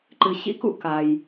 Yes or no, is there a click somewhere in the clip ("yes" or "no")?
yes